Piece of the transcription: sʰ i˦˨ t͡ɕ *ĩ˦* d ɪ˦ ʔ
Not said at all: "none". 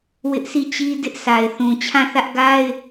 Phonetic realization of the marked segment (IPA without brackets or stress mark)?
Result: i˦